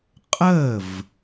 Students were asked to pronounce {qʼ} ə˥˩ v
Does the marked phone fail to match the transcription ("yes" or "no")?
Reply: no